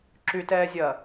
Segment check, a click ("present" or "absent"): present